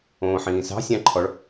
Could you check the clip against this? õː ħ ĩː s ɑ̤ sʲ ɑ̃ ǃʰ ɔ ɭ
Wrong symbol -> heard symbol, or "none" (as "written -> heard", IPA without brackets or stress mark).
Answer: none